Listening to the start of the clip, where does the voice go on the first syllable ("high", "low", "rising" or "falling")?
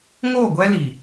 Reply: falling